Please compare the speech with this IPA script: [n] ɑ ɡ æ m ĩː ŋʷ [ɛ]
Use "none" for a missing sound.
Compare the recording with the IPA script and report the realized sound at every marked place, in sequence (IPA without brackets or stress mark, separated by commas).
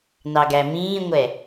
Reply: n, ɛ